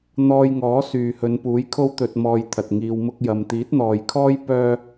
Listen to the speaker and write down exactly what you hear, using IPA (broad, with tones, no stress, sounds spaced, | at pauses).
n̪ ɔː˧ j ŋ ɔː˨˥ s yː˨ h ɵ˨˧ n p uː˨˥ j kʰ o˥ w t̪ ɵ˧ t̚ m ɔː˧ j t̪ʰ ɐ˨ t̚ ŋ iː˨ w m ʊ˧ k̚ j ɐ˨ m t̪ iː˨˥ t̚ n̪ ɔː˨ j kʰ ɔː˥ j p œː˥